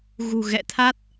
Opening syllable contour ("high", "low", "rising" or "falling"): low